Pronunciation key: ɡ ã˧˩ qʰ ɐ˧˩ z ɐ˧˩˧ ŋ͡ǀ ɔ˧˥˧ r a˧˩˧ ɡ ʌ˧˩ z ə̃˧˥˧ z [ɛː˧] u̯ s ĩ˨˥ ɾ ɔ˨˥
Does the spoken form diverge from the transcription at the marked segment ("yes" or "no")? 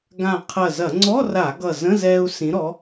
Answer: no